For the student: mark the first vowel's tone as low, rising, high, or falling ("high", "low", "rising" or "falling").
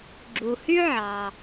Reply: low